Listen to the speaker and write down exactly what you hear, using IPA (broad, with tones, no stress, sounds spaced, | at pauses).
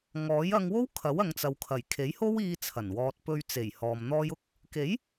ŋ ɔː˨˥ j ɐ˧ ŋ w o˥ w kʰ ɐ˨˥ w ɐ˨˧ ŋ t͡s ɐ˨ w kʰ ɐ˨˩ j kʰ e˨˥ j h o˥ w iː˧ t͡sʰ ɐ˨˩ n w ɔː˨ t̚ p ɵ˧ ɥ t͡s e˨˩ j h ɔː˨ m n̪ ɔː˥ j ʊ˥ k̚ | k e˨˥ j